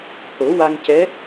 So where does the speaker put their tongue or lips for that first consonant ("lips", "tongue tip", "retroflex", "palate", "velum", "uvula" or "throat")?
throat